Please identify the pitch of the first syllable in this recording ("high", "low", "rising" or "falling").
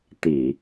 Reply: low